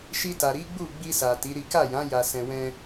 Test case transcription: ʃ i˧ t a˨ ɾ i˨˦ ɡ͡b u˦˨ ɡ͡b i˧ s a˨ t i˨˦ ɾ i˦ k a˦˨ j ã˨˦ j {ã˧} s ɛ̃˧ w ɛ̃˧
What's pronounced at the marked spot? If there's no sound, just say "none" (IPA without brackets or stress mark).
a˧